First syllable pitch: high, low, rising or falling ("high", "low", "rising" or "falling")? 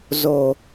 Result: low